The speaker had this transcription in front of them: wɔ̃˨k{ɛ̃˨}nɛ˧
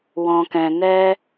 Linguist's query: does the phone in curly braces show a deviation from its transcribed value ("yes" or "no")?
no